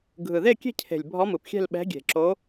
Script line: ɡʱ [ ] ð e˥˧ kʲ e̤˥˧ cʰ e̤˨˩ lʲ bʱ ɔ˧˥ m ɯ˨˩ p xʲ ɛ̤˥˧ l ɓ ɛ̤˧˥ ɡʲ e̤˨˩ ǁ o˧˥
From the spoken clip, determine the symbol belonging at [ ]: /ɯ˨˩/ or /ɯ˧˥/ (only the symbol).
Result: ɯ˨˩